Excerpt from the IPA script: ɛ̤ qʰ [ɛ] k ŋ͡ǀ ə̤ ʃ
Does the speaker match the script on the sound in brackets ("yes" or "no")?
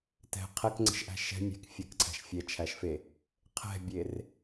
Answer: yes